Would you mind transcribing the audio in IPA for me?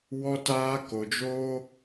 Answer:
w ɔ˧ t aː˧ k o˧ d͡ʒ oː˦

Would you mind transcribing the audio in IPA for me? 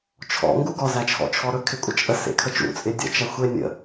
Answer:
t͡ʃʰ ɔ̰ ŋ ɡ u ɡ ɔ z æ t͡ʃʰ ɔ̰ t͡ʃʰ ɔ ɾ ɵ kʰ ɪ kʷʼ ə t͡ʃʼ ə s ḛ kʰ ə t͡ʃ ṵ t͡sʼ ɪ dʲ ə̰ t͡ʃ æ xʷ e nʲ ə̰

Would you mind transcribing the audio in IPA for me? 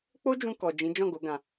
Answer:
k͡p o˦ d͡ʒ ũ˧ k ɔ˨ d͡ʒ ĩ˨˦ d͡ʒ ɔ̃˦˨ ɡ o˨˦ ɡ ã˧

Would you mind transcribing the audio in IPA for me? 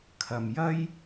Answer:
kʰ ɐ˨ m j ɐ˥ j

